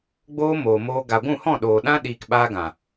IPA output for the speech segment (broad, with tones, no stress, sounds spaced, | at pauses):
ɡ͡b oː˦ m oː˨ m oː˧ ɡ a˨ ɡʷ ũ˦˨ h ɔ̃˦˨ ɗ oː˨ ɗ ã˦ ɗ iː˨ k ɓ aː˧ ɡ ã˨